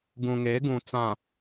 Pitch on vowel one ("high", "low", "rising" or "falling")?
low